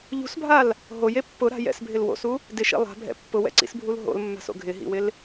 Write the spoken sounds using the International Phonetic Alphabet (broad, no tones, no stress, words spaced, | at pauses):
ʎṳsbʱal | ɦoje pːʊɾa̤ jɛ̰sbʱɪl wo̰su | dɪʃḭ lˠa̤bʱɛ̰ pːʊwɛ̰ǀḭsbʱul ɦo̰lmːa̤so̰ ɡʱɪɦḭwɪl